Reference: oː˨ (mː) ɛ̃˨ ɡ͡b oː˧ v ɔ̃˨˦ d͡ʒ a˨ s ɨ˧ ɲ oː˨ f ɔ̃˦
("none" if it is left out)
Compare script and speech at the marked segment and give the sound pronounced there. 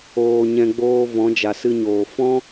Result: ɲ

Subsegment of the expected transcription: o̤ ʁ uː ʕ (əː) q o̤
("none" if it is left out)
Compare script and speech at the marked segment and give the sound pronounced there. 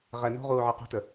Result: əː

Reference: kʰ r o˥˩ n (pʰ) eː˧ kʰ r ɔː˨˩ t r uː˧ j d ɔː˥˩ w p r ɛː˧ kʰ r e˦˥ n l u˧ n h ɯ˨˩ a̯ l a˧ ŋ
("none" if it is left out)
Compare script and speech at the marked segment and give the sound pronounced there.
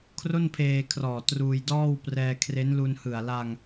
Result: pʰ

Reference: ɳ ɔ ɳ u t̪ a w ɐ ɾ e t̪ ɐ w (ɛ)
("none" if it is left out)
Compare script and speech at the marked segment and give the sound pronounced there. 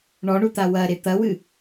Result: ɨ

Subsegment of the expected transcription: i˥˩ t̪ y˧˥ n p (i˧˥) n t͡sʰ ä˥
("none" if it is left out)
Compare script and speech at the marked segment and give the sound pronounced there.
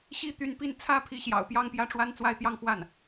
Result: i˥˩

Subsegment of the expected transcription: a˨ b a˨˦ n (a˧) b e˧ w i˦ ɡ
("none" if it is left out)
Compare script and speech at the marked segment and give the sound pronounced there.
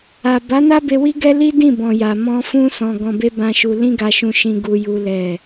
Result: a˦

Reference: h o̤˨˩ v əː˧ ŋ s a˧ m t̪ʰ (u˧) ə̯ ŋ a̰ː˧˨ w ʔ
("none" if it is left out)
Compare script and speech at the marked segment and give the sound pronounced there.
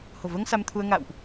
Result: u˧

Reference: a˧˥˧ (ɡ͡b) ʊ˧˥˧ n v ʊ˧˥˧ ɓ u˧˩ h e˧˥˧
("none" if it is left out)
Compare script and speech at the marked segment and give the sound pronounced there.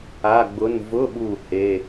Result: ɡ͡b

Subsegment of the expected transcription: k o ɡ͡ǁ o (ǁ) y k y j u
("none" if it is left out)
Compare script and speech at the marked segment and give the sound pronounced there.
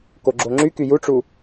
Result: ŋ͡ǁ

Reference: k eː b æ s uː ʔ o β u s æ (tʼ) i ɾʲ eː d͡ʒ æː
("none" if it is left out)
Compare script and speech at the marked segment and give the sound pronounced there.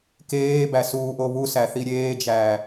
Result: θ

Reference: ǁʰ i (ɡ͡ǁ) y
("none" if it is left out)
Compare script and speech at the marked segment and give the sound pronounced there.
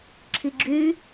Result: ɡ͡ǁ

